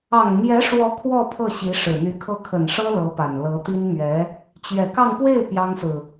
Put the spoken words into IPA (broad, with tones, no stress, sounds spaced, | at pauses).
ɑ˨˩ ŋ m j ɛ˧˥ ʂ w ɔ˧˥ kʰ w ɔ˥˧ pʰ ɤ˥˩ ɕ i˧˥ ʂ ɻ̩˨˩ n̪ y˧˥ kʰ ɤ˥˩ kʰ ə˨˩ n ʂ ɤ˥ l ɤ˧˥ p a˨˩ n l ɤ˧˥ t̪ i˥ n m ɥ ɛ˧˥ | t͡ɕ ɥ ɛ˨˩ k ɑ˥˧ ŋ p w e˥˩ ɪ̯ p j ɑ˥ ŋ s ɹ̩˨